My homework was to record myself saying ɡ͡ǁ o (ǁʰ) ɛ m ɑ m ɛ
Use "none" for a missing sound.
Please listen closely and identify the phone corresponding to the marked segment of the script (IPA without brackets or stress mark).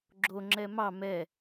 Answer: ŋ͡ǁ